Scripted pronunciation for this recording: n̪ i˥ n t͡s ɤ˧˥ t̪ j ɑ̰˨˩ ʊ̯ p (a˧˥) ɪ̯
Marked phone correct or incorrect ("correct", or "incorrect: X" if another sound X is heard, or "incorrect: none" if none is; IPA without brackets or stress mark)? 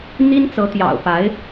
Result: correct